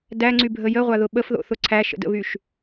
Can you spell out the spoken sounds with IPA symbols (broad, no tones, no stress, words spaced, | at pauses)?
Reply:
dæŋ͡ǀybʱə jəʁʷaðʊ ɓəfðo̰θʊ ǀʰæʃə̰də̰βyʃ